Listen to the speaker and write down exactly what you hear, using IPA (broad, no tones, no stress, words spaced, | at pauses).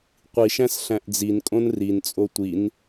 qʷiʃæ̃s ɬæ̃ʔd͡zinkʼõn rint͡sʼo tʷin